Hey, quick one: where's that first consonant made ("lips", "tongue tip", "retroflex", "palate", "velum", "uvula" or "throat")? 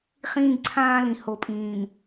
uvula